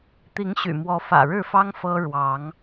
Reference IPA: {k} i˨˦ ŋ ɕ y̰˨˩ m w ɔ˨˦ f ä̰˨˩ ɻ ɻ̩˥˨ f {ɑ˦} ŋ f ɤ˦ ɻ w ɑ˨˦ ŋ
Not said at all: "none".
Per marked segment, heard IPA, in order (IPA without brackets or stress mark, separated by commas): t̪, ɑ˦